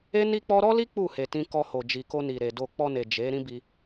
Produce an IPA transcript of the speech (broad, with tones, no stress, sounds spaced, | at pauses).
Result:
e˦ n i˦ k͡p ɔ˦ ɾ ɔ˦ l i˦ k͡p u˦˨ h e˨ t ĩ˧ k ɔ˧ h o˨ d͡ʒ i˨ k o˧ n i˨ ɾ e˨ d o˧ k͡p ɔ˧ n e˨ d͡ʒ e˨˦ ɾ ĩ˦ b i˧